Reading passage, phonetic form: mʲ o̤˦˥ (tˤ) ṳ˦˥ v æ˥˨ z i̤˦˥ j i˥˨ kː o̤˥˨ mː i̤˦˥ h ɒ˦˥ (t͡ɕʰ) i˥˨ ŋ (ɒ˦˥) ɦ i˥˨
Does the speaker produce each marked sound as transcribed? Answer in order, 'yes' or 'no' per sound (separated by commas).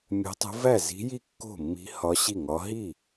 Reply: yes, no, yes